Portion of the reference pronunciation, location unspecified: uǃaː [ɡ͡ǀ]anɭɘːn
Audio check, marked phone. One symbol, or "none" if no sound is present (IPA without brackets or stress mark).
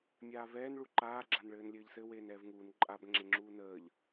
ɡ͡ǁ